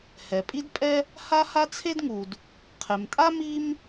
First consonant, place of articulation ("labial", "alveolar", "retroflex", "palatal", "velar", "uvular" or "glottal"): glottal